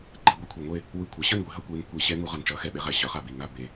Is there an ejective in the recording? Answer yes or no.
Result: no